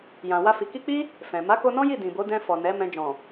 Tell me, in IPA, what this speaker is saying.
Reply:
j ã˨ w a˧ f i˨ k i˧ k͡p i˦ | f ɛ̃˨ m a˨˦ k o˧ n ɔ̃˦ j i˦˨ d ĩ˨ b o˨˦ d ɛ̃˧ f ɔ˨ n ɛ˨˦ m ɛ̃˧ d͡ʒ ɔ̃˨

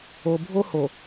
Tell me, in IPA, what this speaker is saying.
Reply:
o˨ bʱ o˦ h o˨

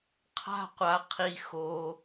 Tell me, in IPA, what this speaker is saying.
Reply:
qʰ a̤˧ qʷ a˩ qʰ i˩ x o˩

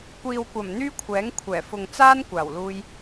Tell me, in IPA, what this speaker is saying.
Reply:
kʷ iː˨ w kʷ ɐ˨˩ m n̪ yː˥ kʷʰ ɛː˨˥ ŋ kʷʰ ɛː˨˩ f ʊ˨ ŋ t͡s aː˥ n kʷ aː˨˩ w l uː˧ j

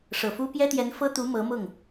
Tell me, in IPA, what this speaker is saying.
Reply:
ʂ ɤ˨˩ f u˥ p j ɛ˥ t̪ j ɛ˧˥ n f ɤ˥ t̪ u˧˥ m ɤ˧˥ m ʊ˥˩ ŋ

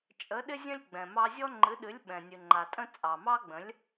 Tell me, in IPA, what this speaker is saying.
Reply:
t͡ʃʼ ə˩˥ ɗ ɪ˥ zʲ ə̃˥ lʲ ɡ͡b ɛ̃˩ m ɑ˧ zʲ ɔ˥ ŋ͡ǃ ɨ˩˥ ɗ ɨ˩˥ lʲ ɓ ɛ̃˩ nʲ ɨ˩ ŋ͡ǃ a˩ tʼ ə̃˥ t͡sʼ ɑ˩ m ɑ˥ ɡ͡b ə̃˩˥ lʲ

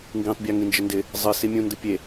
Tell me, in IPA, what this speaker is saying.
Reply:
ŋ ɡ ĩ tˤ bʲ a ŋ ĩ n d͡ʒ ɪ n d ɪ | zˤ ɨ s i mʲ ũ n d ɨ pʲ e

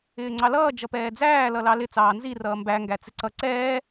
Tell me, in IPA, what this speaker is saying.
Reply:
ɪː ŋ͡ǀ ɑ l ʌː d͡ʒ ʌ p ɛː d͡z æː l ʌ l ɑ l ɪ t͡s ɑː n z i r ʌː m b æ ŋ ɡ æ t͡s ɪ ǀ ʌ ǀ ɛː

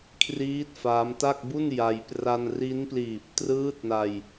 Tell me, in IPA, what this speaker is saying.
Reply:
kʰ r iː˦˥ t̚ f a˦˥ m t a˥˩ k̚ b u˥˩ n j a˧ j p r a˧ n r i˦˥ n p l iː˨˩ p̚ t r ɯː˦˥ t̚ n a˧ j

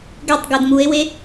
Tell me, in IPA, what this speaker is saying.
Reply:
ɡ ɛ tˤ ɡ o d m u e̯ w e

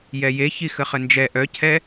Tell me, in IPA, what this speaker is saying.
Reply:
j ɛ j e ç i x ə χ ə n d͡ʒ ɛ ʔ œ cʰ ɛ

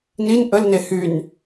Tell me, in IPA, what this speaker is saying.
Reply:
n i n ʔ ə l n e h y n

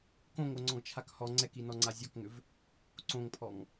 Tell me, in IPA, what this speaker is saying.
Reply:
k õ ŋ o ŋ͡ǀ ɔ̃ ɡ t͡ʃʰ a k h ɔ ŋ͡ǀ ɛ k i n ɔ ŋ͡ǀ a zʲ ɔ k ŋ ʏ v | ǀ õ ŋ pʰ ɔ ŋ

